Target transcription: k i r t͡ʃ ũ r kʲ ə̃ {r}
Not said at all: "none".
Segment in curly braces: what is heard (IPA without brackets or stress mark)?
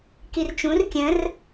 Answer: r